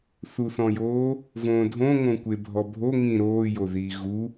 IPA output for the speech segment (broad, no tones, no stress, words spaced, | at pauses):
θuθɔ̃joː | võːdʱõ ŋõkʷebʱɔbʱo ŋĩ ɾoː joðiːɣu